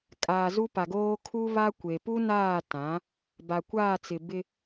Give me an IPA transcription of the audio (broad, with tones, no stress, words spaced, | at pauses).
kʼaː˨zu˦pa˨ɡoː˦ kʰu˦βa˦ kʷe˨pu˦naː˦˨tã˨˦ | ba˨kʷaː˦˨t͡sɪ˨ bɪ˦